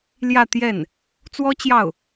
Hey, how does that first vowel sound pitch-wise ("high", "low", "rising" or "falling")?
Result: falling